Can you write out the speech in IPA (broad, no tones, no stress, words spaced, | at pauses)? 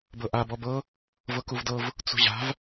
bɤʔa bɔbɤ | vɤkuvdɤv | t͡sṳʑa̤v